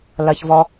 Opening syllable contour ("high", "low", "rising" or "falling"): low